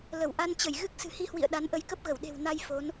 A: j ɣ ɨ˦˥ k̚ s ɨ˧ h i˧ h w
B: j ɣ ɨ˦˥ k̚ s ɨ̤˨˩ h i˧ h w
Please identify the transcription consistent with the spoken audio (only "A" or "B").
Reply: B